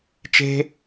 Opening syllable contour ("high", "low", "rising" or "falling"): high